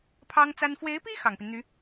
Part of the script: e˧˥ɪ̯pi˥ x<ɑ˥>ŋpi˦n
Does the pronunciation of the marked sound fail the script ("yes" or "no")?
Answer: yes